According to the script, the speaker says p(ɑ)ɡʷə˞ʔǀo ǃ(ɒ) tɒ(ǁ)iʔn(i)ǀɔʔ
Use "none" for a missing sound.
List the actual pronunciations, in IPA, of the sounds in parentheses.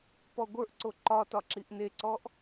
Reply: ɔ, ɒ, ǁ, e

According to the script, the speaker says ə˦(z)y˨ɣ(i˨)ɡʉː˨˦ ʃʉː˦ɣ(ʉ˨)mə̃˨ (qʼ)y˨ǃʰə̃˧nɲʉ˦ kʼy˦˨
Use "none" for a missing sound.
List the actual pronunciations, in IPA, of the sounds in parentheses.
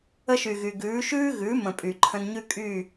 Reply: ʃ, y˨, ʉ˨˦, pʼ

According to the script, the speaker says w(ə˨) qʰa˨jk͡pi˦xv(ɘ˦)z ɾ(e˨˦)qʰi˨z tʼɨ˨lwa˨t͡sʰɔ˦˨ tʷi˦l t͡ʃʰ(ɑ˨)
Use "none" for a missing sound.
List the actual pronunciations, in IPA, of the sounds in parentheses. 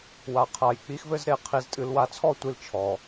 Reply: a˨, ɘ˦, e˨, ɔ˨

